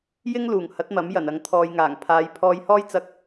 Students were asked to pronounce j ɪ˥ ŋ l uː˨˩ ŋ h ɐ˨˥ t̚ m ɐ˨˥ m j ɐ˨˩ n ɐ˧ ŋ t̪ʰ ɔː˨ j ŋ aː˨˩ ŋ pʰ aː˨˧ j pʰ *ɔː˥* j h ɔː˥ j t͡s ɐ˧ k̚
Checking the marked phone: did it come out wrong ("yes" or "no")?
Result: yes